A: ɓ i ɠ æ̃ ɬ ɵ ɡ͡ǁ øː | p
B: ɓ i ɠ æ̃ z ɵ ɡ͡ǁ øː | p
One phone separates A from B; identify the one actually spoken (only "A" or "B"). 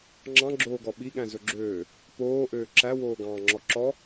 B